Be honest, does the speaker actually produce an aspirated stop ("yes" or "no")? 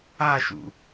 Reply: no